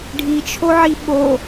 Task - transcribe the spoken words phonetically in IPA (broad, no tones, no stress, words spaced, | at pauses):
ɖʱit͡ʃʰoʕi ɓo